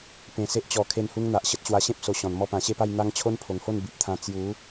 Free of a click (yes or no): yes